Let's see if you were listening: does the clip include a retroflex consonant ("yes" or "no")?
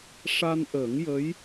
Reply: yes